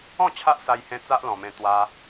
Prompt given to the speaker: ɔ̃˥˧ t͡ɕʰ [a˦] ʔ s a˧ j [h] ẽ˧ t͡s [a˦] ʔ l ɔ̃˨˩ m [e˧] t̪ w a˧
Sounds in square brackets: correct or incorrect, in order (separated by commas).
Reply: correct, correct, correct, incorrect